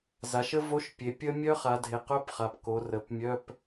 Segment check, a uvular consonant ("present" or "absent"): present